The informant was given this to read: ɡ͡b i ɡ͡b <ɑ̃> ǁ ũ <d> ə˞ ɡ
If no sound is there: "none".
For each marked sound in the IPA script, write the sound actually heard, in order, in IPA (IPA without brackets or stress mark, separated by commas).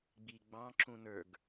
ɑ̃, n